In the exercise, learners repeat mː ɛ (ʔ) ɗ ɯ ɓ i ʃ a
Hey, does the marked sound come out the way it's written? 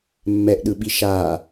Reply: yes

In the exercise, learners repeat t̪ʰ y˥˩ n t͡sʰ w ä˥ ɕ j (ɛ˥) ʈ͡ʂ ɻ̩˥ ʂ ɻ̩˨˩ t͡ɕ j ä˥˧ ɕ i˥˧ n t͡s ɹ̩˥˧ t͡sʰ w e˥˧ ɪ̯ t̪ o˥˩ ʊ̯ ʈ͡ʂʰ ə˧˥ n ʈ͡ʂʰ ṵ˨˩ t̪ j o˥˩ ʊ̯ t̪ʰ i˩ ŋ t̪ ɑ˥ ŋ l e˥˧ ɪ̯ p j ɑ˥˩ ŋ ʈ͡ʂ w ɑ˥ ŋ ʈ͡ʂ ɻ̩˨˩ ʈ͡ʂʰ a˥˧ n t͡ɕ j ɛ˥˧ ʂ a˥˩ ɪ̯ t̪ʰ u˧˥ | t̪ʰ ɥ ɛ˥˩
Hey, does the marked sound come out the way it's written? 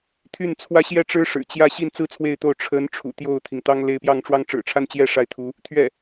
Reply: yes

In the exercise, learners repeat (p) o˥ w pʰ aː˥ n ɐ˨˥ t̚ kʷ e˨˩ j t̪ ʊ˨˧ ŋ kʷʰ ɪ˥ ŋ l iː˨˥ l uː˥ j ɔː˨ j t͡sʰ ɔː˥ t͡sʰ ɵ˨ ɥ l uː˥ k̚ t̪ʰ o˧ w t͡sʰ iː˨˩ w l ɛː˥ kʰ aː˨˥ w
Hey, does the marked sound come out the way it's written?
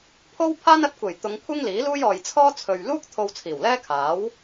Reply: no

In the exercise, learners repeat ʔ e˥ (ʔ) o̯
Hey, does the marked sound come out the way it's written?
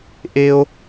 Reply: no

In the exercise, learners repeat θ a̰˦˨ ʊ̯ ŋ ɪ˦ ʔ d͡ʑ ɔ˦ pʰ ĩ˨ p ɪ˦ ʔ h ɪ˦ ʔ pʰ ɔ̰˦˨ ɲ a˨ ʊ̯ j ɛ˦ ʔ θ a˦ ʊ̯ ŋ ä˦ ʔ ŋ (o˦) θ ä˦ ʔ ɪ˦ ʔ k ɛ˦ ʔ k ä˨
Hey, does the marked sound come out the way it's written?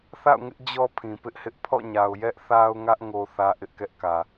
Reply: yes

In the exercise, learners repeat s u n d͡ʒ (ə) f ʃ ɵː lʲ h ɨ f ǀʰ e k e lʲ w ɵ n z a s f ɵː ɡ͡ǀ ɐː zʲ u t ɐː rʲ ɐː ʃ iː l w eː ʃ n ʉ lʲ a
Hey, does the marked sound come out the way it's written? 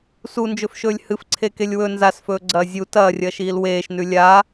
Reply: no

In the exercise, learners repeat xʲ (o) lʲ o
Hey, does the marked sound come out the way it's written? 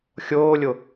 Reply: no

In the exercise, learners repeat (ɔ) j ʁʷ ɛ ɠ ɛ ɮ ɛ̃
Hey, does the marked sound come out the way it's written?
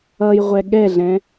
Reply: no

